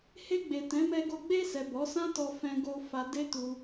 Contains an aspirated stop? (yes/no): no